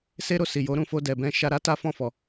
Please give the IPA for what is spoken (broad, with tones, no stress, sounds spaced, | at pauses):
s e˦ ɾ o˧ s i˨ j o˨˦ ɾ ũ˧ f o˧ d ɛ˨ b ɛ̃˧ ʃ a˧ ɾ a˦ t a˦ f ɔ̃˦˨ f ɔ˨